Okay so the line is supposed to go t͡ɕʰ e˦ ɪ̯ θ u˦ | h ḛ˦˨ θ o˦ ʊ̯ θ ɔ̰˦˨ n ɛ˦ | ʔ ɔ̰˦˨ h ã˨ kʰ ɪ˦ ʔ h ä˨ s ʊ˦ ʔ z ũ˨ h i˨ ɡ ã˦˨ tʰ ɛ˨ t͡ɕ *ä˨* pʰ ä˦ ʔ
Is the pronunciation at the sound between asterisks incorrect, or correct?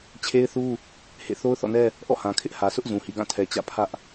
incorrect